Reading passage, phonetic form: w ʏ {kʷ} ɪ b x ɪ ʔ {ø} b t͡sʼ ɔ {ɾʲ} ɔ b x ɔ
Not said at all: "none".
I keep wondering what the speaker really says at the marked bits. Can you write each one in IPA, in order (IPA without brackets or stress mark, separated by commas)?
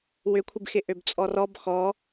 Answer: kʷʰ, ø, r